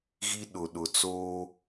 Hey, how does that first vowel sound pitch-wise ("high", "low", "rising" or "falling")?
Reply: high